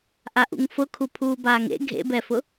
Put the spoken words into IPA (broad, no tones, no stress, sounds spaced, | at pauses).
ʔ a ʔ ṵ ŋ f ʊ kʰ u pʰ uː b aː ŋ ḛ ɡʱ ḛ b ɛ f ʊ